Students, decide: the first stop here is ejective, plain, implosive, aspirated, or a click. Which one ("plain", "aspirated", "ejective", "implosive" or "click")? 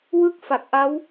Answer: plain